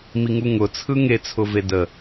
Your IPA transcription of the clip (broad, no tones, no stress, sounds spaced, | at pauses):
m i ŋ u ŋ ʊ t͡sʰ ɯ ŋ e t͡sʰ ʊ v e d ə